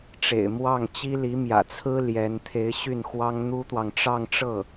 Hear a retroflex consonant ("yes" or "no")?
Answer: yes